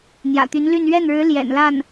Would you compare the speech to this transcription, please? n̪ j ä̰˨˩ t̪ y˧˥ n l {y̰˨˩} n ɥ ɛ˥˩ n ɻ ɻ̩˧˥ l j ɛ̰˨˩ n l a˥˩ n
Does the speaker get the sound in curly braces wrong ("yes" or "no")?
yes